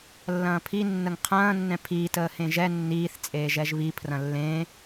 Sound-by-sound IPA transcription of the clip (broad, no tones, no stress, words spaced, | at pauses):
lːɐ̃ːpʰi nːəŋqʰɐ̃ː nːɛ̃pʰiː təːhẽʒɛ nːiːθ t͡sʼeːʒɛʒβi pʰrɐ̃lːẽː